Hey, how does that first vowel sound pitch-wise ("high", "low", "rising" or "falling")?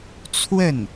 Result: falling